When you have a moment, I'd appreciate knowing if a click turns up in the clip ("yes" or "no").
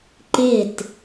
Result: yes